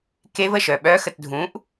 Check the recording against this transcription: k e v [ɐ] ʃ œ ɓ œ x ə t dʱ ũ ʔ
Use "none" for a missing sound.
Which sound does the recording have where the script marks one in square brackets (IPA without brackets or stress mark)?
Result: ə